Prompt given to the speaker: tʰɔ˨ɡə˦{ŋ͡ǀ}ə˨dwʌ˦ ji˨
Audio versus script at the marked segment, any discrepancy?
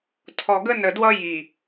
yes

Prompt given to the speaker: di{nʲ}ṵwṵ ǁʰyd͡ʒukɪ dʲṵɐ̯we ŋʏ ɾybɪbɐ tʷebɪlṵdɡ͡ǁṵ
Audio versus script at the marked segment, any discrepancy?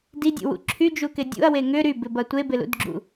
yes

